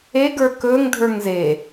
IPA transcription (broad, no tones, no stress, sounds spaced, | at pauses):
e ɡ ə˞ k ɵː ŋ dʱ ə˞ ŋ z e